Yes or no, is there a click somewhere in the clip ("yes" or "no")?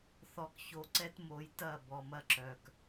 yes